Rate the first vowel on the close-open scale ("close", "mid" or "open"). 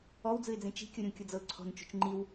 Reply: mid